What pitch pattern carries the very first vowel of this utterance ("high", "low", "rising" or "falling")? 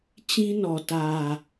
high